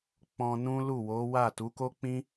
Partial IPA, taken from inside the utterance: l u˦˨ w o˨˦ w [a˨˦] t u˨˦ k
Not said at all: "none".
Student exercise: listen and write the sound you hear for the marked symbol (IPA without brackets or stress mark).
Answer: a˦˨